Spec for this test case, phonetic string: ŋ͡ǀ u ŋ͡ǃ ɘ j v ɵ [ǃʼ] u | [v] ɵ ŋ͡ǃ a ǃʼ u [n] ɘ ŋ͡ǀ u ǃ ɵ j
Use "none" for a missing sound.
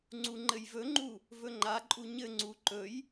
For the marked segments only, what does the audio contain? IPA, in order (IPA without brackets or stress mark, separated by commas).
ŋ͡ǃ, v, ɲ